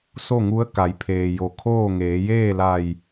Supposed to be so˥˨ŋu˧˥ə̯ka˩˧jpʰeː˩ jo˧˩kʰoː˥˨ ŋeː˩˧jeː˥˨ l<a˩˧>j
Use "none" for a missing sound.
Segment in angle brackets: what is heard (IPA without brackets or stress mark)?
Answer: a˧˩